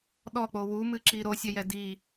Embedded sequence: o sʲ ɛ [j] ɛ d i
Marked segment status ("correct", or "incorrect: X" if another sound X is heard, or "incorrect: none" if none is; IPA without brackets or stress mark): correct